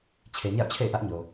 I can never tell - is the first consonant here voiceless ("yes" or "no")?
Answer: yes